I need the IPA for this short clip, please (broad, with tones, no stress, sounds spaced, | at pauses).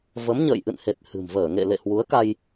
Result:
v ə˨˦ m ɲ ə̰ː˧˨ j ʔ ɨ̰˧˨ n h e˨˩ t̚ h ɨ̤˨˩ m v əː˧˩ ŋ ḛ˧˨ l ḛ˧˨ h w u˨˦ ə̯ k a˧ j